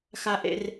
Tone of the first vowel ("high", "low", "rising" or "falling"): high